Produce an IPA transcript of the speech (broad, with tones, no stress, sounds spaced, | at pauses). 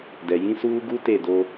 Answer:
d ɛ˨ j ĩ˦ s uː˦ ɡ u˦ t e˦˨ d o˦